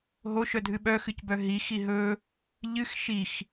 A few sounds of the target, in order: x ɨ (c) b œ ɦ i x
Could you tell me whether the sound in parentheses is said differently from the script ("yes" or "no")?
no